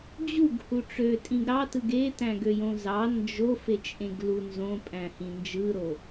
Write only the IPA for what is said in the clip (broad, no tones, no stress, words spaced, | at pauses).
d͡ʑuɡhu ʈ͡ʂøtʼĩɡ ɾɑtɯɡ e tæ̃ɡøjõzɑ nd͡ʒo fet͡ʃʼẽɡlu nzõpʼæ̃hĩ nd͡ʒɯɾo